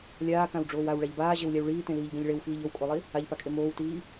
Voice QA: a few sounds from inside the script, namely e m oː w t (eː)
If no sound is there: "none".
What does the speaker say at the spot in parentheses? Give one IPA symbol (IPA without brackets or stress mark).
iː